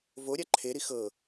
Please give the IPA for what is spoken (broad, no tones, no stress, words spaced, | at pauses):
voɾʲa ǃʰeɾi xɤ